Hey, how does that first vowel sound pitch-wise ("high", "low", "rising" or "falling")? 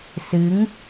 rising